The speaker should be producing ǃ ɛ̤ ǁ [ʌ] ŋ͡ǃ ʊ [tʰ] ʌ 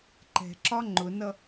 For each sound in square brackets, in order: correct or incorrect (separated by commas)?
incorrect, incorrect